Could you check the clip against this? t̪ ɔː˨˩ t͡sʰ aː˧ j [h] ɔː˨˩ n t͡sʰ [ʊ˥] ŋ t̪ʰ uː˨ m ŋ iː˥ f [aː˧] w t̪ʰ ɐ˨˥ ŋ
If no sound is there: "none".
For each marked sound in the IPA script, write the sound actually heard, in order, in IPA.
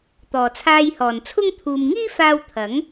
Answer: h, ʊ˥, aː˧

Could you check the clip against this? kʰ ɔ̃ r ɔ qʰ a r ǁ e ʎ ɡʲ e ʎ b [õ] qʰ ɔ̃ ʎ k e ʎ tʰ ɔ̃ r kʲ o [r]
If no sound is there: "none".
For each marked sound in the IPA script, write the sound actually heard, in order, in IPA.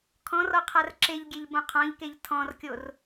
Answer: õ, r

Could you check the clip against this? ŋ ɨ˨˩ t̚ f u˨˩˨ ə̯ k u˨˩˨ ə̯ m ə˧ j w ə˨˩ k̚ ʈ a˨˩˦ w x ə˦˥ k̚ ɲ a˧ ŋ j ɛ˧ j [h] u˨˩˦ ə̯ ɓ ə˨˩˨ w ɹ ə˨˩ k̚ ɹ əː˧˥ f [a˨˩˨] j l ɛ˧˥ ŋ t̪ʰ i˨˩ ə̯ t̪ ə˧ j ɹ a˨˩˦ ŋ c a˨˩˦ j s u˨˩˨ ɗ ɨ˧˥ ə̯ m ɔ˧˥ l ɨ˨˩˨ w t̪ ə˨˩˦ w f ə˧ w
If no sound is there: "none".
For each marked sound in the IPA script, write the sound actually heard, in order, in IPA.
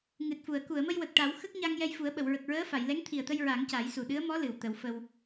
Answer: f, a˨˩˨

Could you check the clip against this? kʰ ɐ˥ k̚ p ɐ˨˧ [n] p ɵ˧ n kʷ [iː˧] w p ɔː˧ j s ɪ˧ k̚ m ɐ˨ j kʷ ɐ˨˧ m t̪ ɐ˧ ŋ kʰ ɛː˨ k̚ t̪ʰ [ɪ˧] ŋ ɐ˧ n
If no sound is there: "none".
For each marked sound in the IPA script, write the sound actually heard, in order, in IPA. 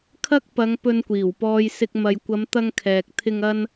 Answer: ŋ, iː˨˩, ɪ˧

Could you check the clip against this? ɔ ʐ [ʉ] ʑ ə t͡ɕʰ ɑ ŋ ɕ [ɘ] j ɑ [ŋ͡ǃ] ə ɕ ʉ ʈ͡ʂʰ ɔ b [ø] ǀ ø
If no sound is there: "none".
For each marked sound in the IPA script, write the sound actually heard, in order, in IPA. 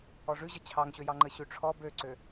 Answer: ʉ, ø, ŋ͡ǃ, ø

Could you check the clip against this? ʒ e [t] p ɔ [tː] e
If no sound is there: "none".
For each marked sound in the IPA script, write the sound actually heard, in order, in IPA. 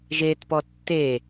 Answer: t, tː

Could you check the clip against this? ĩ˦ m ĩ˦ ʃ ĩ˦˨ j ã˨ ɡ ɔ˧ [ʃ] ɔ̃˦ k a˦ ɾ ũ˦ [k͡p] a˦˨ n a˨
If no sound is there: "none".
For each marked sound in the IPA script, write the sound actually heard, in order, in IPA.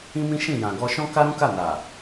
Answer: ʃ, k

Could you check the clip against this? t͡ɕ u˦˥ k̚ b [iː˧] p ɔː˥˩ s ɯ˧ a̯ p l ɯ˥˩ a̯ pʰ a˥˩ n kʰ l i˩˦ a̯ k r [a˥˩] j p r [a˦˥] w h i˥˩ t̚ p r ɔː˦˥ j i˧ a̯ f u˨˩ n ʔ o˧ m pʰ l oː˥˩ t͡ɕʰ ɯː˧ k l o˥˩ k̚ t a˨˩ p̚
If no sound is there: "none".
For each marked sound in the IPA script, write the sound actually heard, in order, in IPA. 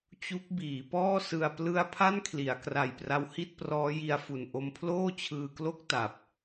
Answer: iː˩˦, a˨˩, a˦˥

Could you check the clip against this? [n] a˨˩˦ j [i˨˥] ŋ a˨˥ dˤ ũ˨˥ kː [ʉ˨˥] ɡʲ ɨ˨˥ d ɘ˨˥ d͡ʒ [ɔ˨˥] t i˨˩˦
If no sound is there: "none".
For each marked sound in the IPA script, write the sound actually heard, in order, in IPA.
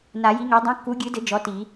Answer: n, i˨˥, u˨˥, ɔ˨˥

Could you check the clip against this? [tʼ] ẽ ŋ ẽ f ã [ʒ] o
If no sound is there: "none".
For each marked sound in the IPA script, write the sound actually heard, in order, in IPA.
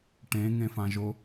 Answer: ʈ, ʒ

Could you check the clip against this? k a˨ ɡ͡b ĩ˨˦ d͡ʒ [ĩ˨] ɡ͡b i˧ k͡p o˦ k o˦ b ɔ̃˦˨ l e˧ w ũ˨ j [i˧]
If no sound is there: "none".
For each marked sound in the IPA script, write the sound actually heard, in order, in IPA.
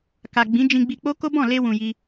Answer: ĩ˧, i˧

